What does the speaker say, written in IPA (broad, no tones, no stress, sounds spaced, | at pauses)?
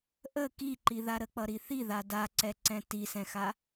ʔ ə k i ǃ i ð a ɾ ə k͡p ʌ ɾ i θ i ð a d a ǀ ɛ ǀ ɛ̃ t i s ɛ̃ x a